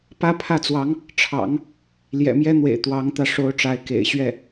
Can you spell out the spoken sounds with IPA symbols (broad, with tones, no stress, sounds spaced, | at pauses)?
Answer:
p ä˥ pʰ ä˥˩ t͡s w ɑ˧˥ ŋ | ʈ͡ʂʰ ɑ̰˨˩˦ ŋ | l j ɛ̰˨˩ m j ɛ˥ n̪ w ḛ˨˩ ɪ̯ t̪ w ɑ˧˥ ŋ t̪ ä˧ ʂ o˧˥ ʊ̯ ʈ͡ʂ a˧˥ ɪ̯ k ḛ˨˩ ɪ̯ ɕ ɥ ɛ˥˩